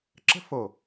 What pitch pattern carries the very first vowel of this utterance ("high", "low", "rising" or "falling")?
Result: high